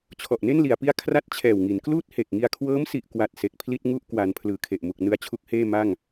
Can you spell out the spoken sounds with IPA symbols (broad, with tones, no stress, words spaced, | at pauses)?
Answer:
t͡ɕʰɔ˨˩ʔne˥˩nli˩˦a̯pi˦˥a̯ kʰra˦˥t̚t͡ɕʰɛː˨˩wŋi˩˦nkluː˥˩t̚ he˨˩k̚ŋi˧a̯kʰwɤː˦˥msi˨˩ʔ kwa˨˩t̚ se˨˩k̚ pʰli˥˩t̚ŋu˥˩ʔkwa˩˦n pʰlɯː˩˦kʰe˨˩ʔmu˨˩k̚ nɯ˧a̯t͡ɕʰu˦˥k̚heː˥˩ ma˥˩ŋ